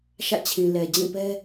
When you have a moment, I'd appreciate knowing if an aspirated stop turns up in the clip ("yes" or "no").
yes